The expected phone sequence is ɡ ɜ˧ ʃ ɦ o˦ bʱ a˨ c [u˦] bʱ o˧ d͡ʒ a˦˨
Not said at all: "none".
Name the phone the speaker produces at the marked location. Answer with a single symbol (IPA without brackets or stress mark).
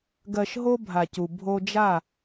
u˨